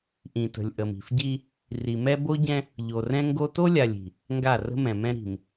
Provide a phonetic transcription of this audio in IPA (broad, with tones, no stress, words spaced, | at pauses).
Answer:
ʔĩ˨tə̤˨lʲʔə˨m i̤˨fɟi˦ | ri˨mɛ˦ bo˦ɟɛ̃˦ | ʎo˨rɛ̃˦ŋɡo˦ to˦lʲa˨lʲ i̤˨ | ŋɡa˦˨rə̤˦mɛ̃˨mɛ̃˦ ɾi̤˨m